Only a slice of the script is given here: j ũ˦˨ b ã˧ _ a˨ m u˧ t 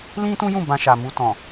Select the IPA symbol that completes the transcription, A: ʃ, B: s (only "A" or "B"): A